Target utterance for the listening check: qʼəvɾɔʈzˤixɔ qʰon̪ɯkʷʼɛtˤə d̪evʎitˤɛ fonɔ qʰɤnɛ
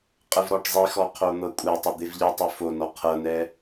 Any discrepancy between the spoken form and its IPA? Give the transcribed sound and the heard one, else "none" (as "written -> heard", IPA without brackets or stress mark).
ɯ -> ɤ